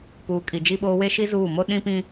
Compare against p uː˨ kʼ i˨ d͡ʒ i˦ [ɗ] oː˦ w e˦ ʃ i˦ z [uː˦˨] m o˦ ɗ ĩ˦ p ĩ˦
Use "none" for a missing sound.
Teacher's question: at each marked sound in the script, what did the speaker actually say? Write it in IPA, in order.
ɓ, uː˦˨

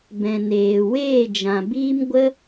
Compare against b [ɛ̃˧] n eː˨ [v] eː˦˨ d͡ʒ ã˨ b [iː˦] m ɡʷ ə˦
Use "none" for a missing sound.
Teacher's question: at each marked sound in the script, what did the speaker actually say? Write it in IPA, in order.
ɛ̃˨, w, iː˦

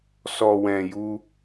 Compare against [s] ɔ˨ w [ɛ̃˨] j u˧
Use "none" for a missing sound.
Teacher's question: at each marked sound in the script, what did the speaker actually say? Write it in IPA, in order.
s, ɛ̃˨

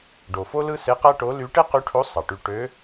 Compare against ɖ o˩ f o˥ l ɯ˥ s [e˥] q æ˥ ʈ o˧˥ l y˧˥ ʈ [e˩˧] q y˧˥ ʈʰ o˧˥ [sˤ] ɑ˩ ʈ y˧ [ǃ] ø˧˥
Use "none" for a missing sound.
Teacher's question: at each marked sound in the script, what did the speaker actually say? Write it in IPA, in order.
e˧˥, e˥, sˤ, ʈ

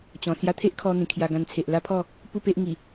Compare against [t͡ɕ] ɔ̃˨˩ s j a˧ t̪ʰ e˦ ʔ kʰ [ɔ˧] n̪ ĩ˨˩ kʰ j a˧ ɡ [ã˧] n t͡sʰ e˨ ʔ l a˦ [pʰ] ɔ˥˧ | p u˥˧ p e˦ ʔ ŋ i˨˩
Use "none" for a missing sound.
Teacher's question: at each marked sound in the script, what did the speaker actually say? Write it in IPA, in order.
t͡ɕ, ɔ˧, ã˧, pʰ

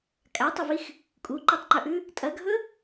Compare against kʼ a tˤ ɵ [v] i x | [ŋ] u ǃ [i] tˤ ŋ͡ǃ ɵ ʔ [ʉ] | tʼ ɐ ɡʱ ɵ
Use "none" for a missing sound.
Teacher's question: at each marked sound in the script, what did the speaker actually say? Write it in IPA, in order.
v, kʼ, i, ʉ

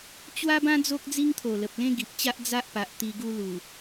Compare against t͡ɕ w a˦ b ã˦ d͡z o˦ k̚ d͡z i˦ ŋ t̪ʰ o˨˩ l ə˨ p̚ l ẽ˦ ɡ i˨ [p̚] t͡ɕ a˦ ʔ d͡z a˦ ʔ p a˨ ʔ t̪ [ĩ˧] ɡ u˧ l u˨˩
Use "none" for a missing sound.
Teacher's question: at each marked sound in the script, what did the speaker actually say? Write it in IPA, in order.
p̚, i˧

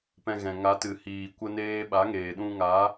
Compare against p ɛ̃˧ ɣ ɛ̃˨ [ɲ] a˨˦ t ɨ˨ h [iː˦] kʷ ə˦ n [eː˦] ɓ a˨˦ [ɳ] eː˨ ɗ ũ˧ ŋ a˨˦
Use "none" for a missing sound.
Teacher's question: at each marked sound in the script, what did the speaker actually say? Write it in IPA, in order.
ŋ, iː˨, eː˦, ŋ

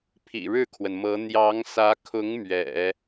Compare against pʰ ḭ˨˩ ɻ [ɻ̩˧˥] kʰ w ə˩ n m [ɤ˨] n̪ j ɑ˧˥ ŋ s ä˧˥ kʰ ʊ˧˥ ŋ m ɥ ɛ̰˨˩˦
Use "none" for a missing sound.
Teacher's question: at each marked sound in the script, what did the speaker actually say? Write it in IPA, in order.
ɻ̩˥˩, ɤ˧˥

